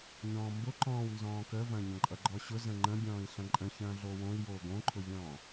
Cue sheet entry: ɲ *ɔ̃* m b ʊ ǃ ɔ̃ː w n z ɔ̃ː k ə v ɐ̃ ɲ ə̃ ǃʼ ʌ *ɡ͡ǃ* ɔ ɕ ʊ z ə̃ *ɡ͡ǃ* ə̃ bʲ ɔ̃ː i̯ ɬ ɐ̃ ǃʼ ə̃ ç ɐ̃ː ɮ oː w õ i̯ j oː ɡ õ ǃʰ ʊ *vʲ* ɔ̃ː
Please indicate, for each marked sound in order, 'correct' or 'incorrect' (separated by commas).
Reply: incorrect, correct, incorrect, correct